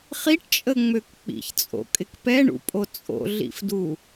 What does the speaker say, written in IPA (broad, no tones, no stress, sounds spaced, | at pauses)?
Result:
χ i ʈ t͡ʃʼ ə ŋ͡m ø k k͡p ḭ ç t͡sʼ o̰ kʼ ɪ k p ɛ ɳ ṵ pʼ o t͡sʼ o̰ ɮ ḭ f d u